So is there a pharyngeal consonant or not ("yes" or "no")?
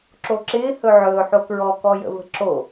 yes